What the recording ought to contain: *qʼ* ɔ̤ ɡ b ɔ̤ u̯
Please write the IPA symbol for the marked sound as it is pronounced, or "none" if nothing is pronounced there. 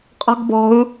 qʼ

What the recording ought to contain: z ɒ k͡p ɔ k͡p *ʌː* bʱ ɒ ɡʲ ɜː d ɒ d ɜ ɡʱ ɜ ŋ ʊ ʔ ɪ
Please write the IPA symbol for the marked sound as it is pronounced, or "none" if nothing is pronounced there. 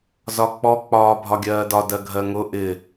ɒː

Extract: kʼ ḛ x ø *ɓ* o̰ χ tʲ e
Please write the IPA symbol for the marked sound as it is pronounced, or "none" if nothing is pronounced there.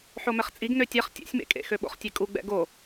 ɓ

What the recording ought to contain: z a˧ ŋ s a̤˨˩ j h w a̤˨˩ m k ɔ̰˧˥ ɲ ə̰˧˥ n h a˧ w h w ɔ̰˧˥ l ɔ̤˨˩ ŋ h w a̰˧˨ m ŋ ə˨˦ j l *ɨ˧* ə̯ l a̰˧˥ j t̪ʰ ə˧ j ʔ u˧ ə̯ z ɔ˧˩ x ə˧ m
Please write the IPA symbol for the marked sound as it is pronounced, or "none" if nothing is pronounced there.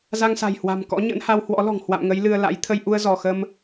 ɨ˧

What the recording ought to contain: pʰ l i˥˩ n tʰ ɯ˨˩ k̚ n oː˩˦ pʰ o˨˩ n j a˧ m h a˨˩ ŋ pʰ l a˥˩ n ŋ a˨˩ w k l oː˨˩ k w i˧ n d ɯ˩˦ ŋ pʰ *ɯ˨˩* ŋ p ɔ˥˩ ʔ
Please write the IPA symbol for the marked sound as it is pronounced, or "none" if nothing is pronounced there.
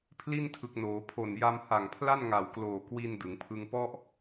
ɯ˥˩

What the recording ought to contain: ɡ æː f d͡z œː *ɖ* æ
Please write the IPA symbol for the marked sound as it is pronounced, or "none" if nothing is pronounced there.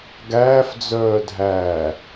dʱ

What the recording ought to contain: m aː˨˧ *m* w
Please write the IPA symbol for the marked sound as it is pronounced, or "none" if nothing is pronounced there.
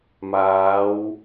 none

